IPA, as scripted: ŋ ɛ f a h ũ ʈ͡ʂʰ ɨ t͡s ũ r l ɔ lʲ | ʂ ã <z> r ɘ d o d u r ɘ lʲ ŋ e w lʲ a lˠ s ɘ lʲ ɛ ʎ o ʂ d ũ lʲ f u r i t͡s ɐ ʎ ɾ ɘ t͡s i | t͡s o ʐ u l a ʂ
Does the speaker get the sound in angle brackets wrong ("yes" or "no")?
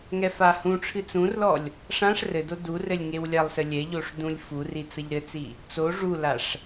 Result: yes